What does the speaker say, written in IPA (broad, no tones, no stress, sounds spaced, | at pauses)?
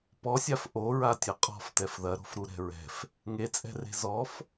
p ɔ sʲ a f ʔ o ɹ a tʲ ɐ qʼ ɔ̤ f t ɛ f ð ɐ ɾ o̤ f ɾ u ɾ ɛ̤ ɹ ɛ̤ f | ŋ e t͡sʼ ɛ̤ r e̤ z ɔ f